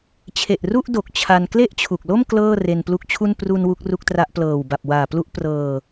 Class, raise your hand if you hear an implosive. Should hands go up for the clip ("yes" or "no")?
no